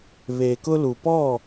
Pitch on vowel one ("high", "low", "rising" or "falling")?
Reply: low